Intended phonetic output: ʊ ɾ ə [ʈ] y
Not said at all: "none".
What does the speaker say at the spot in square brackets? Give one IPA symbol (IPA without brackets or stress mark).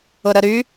ɾ